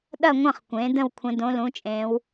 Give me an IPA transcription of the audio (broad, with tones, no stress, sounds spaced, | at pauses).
ɗ ɐ˦˨ ŋʷ ɐ̃˦˨ χ kʷ ẽ˩˧ d ə̃˦˨ w kʷʰ ə̃˩˧ d õ˩˧ l ũ˩˧ t͡ʃʼ ẽ˩˧ w